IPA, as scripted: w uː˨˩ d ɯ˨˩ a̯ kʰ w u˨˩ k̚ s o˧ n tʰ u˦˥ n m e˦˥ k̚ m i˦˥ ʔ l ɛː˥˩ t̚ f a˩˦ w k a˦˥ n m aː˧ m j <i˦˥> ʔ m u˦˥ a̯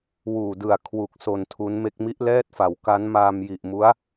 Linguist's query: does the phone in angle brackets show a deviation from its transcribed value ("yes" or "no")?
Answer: yes